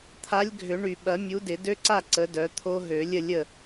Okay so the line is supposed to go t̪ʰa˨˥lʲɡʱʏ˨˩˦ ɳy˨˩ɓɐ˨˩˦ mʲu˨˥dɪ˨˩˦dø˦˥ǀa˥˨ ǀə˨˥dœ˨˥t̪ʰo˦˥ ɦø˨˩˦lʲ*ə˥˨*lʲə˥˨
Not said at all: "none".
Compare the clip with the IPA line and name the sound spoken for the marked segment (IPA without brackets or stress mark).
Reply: ə˥˨